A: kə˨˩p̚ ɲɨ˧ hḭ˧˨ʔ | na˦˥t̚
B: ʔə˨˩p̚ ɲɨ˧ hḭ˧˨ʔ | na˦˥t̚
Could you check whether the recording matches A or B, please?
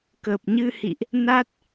A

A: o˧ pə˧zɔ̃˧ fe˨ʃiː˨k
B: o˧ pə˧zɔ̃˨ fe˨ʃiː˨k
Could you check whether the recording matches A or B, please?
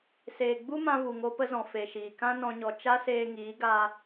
B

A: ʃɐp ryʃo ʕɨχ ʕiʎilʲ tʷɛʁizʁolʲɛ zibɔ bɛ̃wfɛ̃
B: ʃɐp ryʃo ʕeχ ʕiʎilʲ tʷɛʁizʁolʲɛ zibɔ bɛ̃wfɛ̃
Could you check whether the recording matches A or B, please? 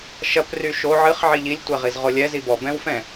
A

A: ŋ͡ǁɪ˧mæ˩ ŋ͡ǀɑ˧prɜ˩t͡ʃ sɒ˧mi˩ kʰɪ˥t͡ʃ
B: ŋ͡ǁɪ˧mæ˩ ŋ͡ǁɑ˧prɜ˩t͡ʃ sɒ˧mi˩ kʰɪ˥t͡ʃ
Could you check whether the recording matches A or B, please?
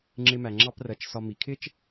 B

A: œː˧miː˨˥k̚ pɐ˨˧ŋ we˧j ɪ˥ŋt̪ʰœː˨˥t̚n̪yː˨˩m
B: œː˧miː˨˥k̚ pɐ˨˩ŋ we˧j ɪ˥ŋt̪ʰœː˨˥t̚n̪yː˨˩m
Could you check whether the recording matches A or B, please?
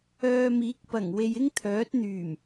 B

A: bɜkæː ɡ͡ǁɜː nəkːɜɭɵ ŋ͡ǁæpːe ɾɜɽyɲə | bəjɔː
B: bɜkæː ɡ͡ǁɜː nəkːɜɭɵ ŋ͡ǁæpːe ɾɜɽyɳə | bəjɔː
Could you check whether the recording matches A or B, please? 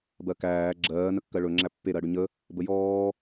A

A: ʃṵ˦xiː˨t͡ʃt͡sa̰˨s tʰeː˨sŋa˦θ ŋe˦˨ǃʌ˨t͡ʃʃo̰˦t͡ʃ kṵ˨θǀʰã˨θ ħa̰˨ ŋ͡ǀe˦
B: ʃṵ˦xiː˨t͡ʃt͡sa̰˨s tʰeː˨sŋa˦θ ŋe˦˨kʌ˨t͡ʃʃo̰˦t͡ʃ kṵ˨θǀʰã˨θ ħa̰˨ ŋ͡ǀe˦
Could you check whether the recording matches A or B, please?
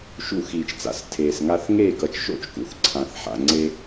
B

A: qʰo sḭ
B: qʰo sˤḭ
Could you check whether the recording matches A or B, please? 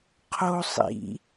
B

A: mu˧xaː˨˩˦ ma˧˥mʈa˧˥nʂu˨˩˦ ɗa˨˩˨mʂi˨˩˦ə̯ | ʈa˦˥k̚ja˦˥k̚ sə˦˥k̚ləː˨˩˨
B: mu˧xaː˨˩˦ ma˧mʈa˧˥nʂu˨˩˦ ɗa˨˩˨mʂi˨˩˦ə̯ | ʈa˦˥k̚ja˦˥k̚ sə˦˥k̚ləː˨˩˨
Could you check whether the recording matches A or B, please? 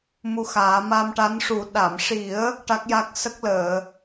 B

